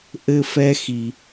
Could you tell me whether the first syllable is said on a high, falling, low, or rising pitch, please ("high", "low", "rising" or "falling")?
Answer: high